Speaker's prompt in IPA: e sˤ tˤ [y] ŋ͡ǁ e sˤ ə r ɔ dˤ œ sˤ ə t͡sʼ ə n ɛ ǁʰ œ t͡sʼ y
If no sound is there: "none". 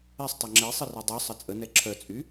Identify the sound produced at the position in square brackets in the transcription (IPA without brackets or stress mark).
ø